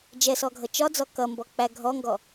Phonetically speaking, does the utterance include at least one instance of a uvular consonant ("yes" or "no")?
no